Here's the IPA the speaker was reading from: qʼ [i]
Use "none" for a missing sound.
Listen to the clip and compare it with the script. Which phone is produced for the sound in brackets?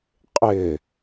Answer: ɪ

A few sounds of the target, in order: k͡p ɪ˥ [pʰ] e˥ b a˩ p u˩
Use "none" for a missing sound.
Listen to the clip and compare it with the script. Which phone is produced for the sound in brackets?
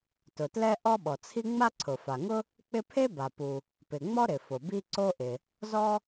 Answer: pʰ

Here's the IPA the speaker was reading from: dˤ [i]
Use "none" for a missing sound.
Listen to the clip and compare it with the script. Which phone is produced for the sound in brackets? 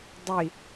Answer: i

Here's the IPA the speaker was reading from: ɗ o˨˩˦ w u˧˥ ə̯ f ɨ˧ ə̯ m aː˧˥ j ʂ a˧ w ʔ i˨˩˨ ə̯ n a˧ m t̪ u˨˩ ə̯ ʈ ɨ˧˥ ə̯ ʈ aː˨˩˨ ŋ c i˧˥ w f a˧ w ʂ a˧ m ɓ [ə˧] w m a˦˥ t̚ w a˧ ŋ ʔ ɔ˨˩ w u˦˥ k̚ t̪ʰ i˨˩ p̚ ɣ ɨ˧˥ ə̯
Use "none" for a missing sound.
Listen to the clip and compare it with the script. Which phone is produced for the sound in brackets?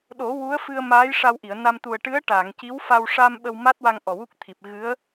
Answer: ə˧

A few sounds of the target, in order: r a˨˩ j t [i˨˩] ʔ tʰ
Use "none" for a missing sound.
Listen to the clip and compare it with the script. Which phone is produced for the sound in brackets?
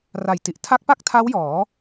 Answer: i˨˩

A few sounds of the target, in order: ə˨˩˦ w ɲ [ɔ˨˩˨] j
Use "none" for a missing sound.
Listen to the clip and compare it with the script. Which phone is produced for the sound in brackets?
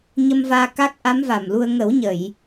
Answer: ə˨˩˨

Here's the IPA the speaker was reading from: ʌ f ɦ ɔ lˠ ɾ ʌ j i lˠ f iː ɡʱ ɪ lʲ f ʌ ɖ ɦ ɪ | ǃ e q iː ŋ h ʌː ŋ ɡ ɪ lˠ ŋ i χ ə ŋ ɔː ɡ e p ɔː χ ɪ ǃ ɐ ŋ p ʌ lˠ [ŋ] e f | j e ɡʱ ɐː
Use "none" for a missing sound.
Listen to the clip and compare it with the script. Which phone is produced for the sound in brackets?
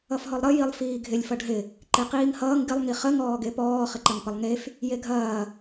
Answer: ŋ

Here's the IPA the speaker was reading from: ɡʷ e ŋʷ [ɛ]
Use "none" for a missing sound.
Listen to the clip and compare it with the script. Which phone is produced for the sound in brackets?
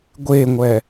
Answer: ɛ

